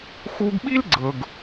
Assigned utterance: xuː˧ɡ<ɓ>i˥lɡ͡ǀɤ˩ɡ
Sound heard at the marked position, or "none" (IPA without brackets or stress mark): ɓ